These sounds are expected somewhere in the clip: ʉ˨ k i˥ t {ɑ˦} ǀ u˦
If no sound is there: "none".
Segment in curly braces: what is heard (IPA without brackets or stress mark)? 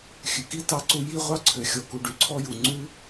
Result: ɑ˦